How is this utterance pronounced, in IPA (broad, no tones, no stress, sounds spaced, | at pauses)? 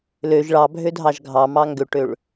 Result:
l ø ʒ ɭ ɑ bʱ ø dʱ ɑ ʒ ɡʱ ɑ m ɑ ŋ ɡ ø ʈ ø ɭ